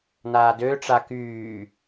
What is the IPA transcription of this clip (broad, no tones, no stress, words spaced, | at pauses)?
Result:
naːdøʈ͡ʂa kyː